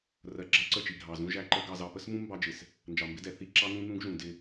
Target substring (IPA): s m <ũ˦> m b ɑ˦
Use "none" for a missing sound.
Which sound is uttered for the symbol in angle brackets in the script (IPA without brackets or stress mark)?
ũ˦